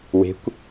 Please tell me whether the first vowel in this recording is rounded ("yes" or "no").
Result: no